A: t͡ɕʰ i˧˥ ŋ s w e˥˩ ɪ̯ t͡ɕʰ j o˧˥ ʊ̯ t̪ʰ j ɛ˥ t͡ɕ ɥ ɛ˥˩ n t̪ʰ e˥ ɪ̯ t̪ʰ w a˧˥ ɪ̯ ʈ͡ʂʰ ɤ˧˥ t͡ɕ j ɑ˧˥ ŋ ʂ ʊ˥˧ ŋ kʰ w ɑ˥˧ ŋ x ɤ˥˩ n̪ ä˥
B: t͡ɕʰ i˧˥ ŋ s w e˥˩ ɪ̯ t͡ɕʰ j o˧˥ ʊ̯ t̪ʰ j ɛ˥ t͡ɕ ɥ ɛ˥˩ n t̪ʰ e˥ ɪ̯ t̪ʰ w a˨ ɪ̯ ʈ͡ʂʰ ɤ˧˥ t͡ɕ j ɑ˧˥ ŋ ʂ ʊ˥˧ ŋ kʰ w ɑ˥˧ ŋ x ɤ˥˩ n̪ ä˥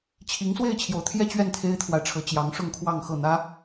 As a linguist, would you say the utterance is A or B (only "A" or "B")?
B